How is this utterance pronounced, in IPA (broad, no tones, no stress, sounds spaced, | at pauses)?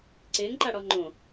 ǀ ɪː ŋ ǃ a ɽ ɔ ŋ͡ǃ õ